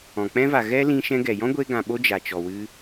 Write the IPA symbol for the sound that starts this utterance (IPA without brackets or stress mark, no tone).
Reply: ɔ̃